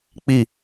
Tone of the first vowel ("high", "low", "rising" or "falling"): falling